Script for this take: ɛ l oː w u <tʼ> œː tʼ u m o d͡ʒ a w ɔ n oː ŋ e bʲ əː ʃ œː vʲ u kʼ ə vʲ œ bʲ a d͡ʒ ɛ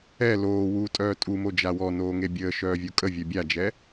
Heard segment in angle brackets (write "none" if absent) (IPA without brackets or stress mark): tʼ